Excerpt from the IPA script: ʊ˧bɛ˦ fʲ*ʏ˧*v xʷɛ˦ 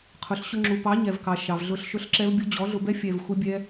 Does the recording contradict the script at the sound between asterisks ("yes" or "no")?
yes